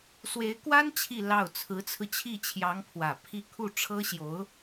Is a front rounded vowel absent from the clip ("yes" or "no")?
yes